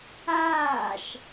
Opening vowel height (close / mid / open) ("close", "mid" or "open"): open